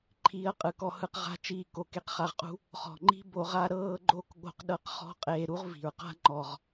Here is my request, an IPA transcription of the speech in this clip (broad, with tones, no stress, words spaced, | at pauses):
ǃʰiː˧ɐ̯qʼɯ˨kɔ˧hɯ˧q ʁa̤˦t͡ʃiː˦˨ ko˨ke˧qχa˧ʁqʼṳ˦ | χɔ̤˨ ŋ͡ǃi̤˦ bo˧ʁa˦ ɾɤː˦ɡ͡ǃo˦k ɠo̤˧q ɗɤ˧qχɔ̤˦˨ qʼeː˧ ɾu˦ʁvi̤˨ɹqa̤˦ ŋ͡ǃɔ˨ʁ